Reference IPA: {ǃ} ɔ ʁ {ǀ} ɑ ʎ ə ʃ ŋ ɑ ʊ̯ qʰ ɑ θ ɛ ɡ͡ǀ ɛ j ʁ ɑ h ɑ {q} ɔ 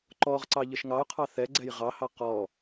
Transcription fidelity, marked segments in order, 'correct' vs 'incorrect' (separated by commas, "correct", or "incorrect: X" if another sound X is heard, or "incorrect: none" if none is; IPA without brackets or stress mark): correct, correct, correct